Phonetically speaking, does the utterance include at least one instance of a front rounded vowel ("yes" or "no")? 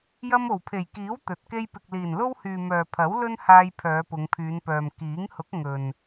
yes